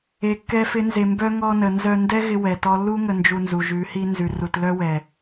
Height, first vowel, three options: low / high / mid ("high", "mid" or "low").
mid